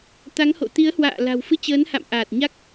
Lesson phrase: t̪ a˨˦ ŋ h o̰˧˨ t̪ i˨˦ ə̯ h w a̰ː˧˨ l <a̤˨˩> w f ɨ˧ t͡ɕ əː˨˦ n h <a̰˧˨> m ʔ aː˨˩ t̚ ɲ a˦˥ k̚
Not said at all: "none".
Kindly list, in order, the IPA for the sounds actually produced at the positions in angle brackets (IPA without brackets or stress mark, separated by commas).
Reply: a̤˨˩, a̰˧˨